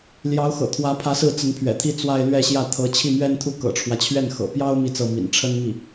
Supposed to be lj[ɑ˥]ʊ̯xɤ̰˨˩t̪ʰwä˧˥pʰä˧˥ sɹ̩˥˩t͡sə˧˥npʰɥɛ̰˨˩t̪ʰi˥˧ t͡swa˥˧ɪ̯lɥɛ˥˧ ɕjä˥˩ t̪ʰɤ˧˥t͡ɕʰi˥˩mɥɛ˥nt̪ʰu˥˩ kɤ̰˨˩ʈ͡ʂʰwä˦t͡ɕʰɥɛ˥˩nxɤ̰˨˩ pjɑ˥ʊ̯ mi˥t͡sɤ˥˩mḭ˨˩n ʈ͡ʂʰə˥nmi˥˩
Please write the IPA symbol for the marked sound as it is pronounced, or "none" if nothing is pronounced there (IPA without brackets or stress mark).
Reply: ɑ˧˥